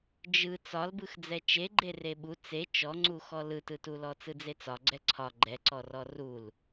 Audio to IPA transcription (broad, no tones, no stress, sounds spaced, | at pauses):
d͡ʒ ɯ t͡s ɒ l b ɯ x d͡z ɛ t͡ʃ e ɡ͡ǃ e r e ɓ u t͡s e t͡ʃ ɔ ŋ͡ǀ u x ɔ l ɯ t ɯ t u l ɔ t͡s ɯ d͡z e t͡s ɒ ɡ͡ǀ ɛ ǀʰ ɒ ɡ͡ǃ ɛ ǀ ɔ r ɔ r u l